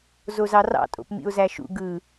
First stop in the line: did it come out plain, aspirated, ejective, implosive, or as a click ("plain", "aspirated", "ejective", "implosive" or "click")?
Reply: ejective